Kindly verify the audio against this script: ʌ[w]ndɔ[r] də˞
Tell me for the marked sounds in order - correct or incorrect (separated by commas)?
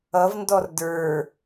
incorrect, correct